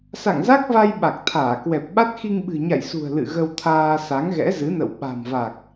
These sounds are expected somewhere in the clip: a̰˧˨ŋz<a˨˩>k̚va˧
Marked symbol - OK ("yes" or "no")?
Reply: no